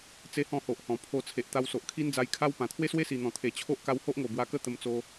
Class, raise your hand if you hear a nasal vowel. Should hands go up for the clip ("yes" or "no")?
yes